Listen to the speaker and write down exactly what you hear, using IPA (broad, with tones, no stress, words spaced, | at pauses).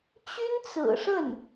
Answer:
t͡ɕy˥nt͡sɹ̩˨˩ʂə˥˩n